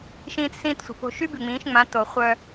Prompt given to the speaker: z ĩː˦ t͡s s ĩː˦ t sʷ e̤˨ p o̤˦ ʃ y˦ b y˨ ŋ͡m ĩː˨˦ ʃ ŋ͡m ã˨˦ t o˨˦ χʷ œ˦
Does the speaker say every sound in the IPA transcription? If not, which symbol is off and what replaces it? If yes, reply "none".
z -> ʃ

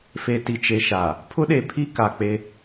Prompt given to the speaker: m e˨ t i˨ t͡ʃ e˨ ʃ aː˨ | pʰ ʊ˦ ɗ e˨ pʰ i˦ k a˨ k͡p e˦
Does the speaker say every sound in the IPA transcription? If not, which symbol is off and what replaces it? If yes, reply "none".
m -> f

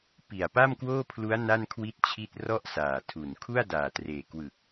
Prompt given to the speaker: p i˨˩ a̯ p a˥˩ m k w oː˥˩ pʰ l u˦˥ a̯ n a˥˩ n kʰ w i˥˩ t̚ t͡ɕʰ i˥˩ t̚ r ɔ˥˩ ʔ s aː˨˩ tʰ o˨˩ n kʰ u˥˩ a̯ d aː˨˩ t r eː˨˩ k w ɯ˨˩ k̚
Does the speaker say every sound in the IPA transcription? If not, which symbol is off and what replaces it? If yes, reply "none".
o˨˩ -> u˨˩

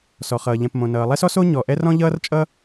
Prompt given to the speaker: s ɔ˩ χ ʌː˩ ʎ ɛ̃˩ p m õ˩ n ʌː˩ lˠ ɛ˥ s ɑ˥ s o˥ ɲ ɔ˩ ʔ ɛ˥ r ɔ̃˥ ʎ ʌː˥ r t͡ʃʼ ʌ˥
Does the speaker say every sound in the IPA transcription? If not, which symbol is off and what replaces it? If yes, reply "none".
ɑ˥ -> ɔ˥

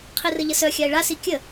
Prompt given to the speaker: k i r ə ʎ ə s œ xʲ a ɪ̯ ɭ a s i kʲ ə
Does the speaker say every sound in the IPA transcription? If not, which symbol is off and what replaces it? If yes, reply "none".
k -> qʰ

